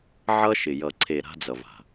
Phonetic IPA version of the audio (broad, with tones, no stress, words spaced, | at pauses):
ʕʌ˦ʃɪ˨ jʌ˨ǀʰe˨ ɾa̤˦d͡zʌ˨va̤˨